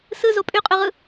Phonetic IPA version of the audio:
sɯzo pʼyqʼyʁɯ

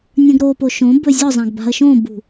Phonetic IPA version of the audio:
nʲə̃ɡɾopo ʃõ bɵzʲɔzˤãɡ ba̤ə̯ʃõbṳ

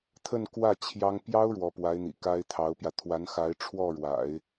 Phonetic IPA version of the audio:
t̪ʰə˥˧nkwä˥˩ t͡ɕʰjɑ˥ŋ pjɑ˥ʊ̯ ɻwɔ˧˥pwa˧˥ɪ̯n̪ḭ˨˩ ka˥ɪ̯t̪ʰɑ˧˥ʊ̯pjä˧ t̪ʰwa˧˥nxa˧˥ɪ̯ ʈ͡ʂʰwɔ˥˩ɻwa̰˨˩˦ɪ̯

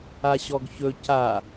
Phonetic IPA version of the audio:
aɕɔɡçɵ ca

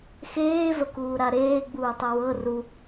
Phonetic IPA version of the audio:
xeːvəkuːɾa ɾeːɡ͡buːtˤə wɤ ru

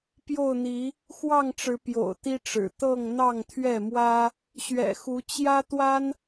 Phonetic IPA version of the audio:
pjo˥˨ʊ̯n̪i˨˦ | xwɑ˥˨ŋʈ͡ʂɻ̩˨˦ pjo̰˨˩ʊ̯t̪i˦ʈ͡ʂɻ̩˨˩ t̪ɤ˥˨ŋ n̪ɑ˥˨ŋt̪ʰɥɛ˥˨mwä˦ | ɕɥɛ̰˨˩xu˨˦ t͡ɕjä˦t̪wa˦n

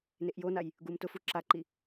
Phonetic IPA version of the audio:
neʔjonaj | ɡumtʊfu ǁaǃi

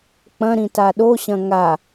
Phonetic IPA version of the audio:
k͡pɐ̃ ɾĩtaɗoɕɐ̃ ŋa

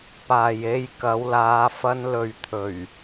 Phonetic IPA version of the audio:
paː˨je˧j kɐ˨˧wlaː˨˧ fɐ˧nlɵ˨ɥ t̪ʰɵ˨˩ɥ

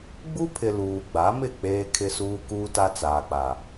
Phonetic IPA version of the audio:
ɡ͡bu˦pʰɪ˨ luː˨ɡ͡ba˨˦mɪ˦˨ k͡peː˦ kʰɪ˦suː˦ kuː˦ta˦t͡saː˨k͡pa˨

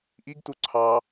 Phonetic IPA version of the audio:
ʔiɡtu ǀʰɑ

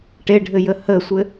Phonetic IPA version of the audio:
ʈeɖʱɘjə həsʷɘ

